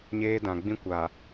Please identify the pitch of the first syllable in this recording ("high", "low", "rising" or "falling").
high